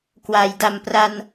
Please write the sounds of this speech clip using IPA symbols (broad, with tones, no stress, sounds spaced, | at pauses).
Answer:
k w a˩˦ j d a˨˩ m p r a˧ n